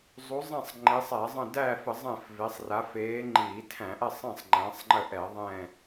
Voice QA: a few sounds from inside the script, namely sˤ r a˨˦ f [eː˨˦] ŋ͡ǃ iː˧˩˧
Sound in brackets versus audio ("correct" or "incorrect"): correct